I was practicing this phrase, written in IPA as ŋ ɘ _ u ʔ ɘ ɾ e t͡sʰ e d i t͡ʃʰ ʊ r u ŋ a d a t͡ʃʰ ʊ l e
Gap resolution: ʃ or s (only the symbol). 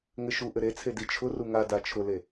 ʃ